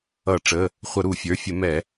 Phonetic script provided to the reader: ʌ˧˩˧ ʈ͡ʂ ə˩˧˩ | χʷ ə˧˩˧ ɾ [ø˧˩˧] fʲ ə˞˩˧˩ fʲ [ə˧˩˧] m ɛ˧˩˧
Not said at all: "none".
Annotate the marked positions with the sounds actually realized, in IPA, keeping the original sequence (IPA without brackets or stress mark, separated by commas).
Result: u˧˩˧, ə˧˩˧